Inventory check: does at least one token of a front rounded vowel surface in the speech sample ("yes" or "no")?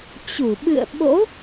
no